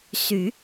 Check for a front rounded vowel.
present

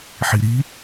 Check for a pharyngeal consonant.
present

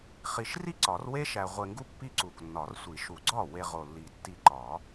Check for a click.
present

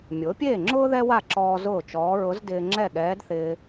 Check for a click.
present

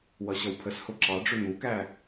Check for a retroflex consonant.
present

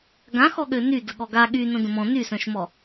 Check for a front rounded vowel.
present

